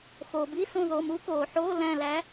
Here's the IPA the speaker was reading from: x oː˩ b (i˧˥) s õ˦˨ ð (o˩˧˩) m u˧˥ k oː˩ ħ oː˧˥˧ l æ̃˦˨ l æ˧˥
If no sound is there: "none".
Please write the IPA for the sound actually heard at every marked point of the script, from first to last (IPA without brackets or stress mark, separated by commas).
i˧˥˧, o˩˧˩